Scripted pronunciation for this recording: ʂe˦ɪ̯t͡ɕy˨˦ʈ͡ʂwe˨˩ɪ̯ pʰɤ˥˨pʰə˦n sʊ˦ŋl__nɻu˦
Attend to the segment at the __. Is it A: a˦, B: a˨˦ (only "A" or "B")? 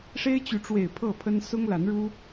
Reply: B